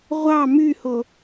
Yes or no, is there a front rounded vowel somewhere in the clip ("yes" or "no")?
yes